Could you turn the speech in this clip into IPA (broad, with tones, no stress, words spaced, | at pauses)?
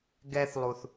ɡɛ˦θlˠu˨θ